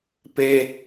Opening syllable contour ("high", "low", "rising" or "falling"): high